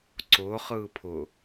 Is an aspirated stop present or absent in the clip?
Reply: present